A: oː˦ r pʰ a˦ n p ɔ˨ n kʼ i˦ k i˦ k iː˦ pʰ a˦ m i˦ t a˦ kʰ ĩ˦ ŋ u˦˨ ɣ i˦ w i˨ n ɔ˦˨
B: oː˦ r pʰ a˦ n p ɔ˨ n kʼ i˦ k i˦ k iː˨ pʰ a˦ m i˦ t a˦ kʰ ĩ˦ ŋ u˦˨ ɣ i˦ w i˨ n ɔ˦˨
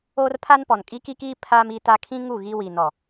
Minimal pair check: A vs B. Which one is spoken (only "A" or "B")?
A